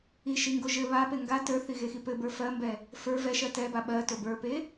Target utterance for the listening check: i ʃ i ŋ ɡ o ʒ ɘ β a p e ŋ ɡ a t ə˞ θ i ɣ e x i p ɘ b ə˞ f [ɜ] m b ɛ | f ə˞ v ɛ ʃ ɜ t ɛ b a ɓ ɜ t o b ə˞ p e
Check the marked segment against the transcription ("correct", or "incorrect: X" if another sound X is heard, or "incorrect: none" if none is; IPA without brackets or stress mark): correct